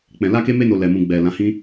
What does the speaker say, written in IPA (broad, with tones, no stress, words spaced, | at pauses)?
k͡pɛ̃˧ la˦ke˦me˦ no˧ lɛ˧mũ˧ ɡ͡bɛ˨ lã˨˦hĩ˦